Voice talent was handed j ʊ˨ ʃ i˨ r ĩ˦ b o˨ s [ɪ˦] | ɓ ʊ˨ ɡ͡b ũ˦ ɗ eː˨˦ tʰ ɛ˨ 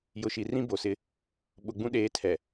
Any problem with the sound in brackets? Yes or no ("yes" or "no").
no